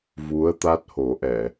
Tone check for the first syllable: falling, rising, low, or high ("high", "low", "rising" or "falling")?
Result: rising